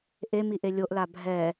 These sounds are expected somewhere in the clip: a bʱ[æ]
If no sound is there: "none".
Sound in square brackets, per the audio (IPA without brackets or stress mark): ɛ